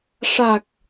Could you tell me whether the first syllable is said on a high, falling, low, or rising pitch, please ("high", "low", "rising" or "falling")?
low